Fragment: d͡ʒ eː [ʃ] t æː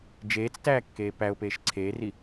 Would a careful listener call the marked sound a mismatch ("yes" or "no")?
yes